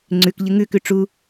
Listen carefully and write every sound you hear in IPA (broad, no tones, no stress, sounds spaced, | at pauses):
ŋ͡ǀ ʉ k ʎ ɨ ŋ ʉ k ʉ ʈ͡ʂ u